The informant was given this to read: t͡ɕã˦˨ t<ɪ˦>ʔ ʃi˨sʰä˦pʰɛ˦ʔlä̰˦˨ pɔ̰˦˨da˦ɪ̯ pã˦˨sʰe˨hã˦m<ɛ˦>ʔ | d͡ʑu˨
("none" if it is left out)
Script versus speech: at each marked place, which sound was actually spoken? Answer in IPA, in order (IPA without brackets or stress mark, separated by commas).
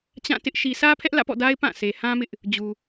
ɪ˦, ɪ˦